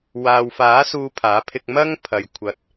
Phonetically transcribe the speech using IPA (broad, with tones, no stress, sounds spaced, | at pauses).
w aː˨ w f aː˨˥ s uː˧ pʰ aː˨˥ pʰ ɪ˧ k̚ m ɐ˥ ŋ pʰ ɐ˧ j kʷʰ ɐ˨ t̚